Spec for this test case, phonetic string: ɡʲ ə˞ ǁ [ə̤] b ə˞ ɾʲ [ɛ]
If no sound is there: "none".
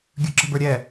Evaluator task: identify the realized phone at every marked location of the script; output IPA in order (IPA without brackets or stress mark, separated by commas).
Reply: ə̤, ɛ